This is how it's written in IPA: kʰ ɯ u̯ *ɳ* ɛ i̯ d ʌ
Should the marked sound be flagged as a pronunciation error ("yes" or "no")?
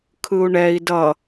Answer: no